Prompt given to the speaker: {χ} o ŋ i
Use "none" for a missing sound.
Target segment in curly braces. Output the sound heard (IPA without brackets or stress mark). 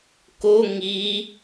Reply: k